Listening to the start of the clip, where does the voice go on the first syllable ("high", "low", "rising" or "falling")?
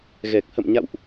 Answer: low